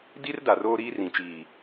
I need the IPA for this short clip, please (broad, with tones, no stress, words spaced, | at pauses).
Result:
di˦rda˨ roː˦ɾiː˦rĩ˨t͡ʃiː˨